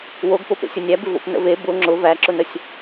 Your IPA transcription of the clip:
woɡpop ḛsʲʊnʲæbɪ vo̰pnə̰ve bʊ ŋ͡ǁʊ væǁʊnəsʲ

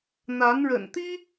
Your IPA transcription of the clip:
n̪a˧˥nɻə̰˨˩nt̪i˥

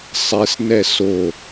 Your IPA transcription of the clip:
sˤesnɛ so

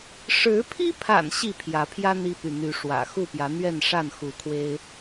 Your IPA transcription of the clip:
ʂɻ̩˨˦pʰi˦pʰa̰˨˩n ɕi˥˨pʰjä˨˦pʰjä˦ n̪i˦py˨n̪y˨˦ʂwä̰˨˩ xu˥˨pjä˨˦n̪ɥɛ˥˨nʂa˥˨n xu˨˦kʰwe˦ɪ̯

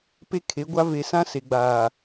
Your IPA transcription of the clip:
pe˦kʰe˨˦ɡʷa˦ ve˨sã˦ se˨ɡ͡baː˨

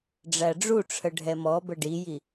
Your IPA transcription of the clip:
ɖ͡ʐæɖ͡ʐuʈ͡ʂʰə ɖʱɛmɔbə ɖiji

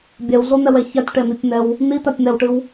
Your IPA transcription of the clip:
bʲɛwɮon̪ɛwɛ çatʲʈɛnitʲn̪ɛw | nitatʲn̪ɛwʈɨw

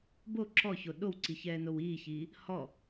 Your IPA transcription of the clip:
bo ǁɔço ɗowǀiçɛːnow iːçiː | hɔ

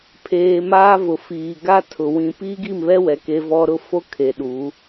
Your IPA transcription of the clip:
pʰeː˨ maː˦vʊ˨ fiː˨ɡa˦tʰʊ˨ wĩ˨ piː˦ɡi˦˨mβɛ˦wɛ˨ ke˦ vɔ˦ ɾʊ˦˨fo˦ kʰe˨ɗu˨˦

